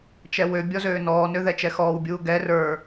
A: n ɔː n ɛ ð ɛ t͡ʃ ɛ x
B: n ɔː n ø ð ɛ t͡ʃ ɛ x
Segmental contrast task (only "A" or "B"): B